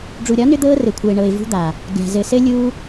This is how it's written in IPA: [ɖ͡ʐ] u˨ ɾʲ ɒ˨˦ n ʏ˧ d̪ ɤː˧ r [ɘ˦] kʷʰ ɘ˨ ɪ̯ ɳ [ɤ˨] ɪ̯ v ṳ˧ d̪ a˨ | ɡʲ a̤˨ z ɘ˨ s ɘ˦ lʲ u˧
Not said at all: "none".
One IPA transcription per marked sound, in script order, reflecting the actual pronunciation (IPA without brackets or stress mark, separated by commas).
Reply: ɖ͡ʐ, ɘ˨, ɤ˨